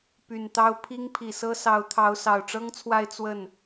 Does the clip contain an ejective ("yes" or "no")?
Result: no